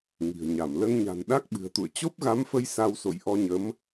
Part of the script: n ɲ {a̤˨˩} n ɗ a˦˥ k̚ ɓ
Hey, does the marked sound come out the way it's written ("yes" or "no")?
yes